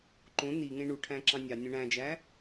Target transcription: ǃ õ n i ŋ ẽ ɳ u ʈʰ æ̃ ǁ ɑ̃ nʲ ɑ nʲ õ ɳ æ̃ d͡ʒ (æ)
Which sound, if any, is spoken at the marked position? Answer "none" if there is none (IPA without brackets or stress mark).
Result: æ